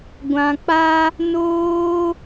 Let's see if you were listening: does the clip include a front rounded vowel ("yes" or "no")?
no